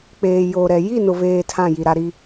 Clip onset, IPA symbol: k͡p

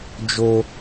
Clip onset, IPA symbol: d͡ʒ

